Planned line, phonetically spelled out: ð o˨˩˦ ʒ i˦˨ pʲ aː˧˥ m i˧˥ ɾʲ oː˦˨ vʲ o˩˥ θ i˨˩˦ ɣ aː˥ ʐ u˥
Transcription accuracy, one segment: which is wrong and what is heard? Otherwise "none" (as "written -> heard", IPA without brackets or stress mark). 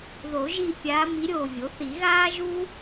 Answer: ʐ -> ʒ